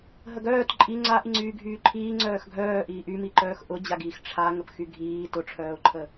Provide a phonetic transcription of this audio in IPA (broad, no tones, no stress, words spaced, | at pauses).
ɦəɡœːt ǃʼi ŋ͡ǀaʔiŋ͡ǀyː ɡʱyːǃʰiː ŋ͡ǀœːxɡʱœː ʔiːʔymiǃœːx ʔʊd͡ʑaɡiːx ʈ͡ʂʰa ŋəpxyɡʱiː tʊʈ͡ʂʰœːʊ̯ǃʰə